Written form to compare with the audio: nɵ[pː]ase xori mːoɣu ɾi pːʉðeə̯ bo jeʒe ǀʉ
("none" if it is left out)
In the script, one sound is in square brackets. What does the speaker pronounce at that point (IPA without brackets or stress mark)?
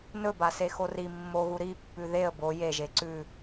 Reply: b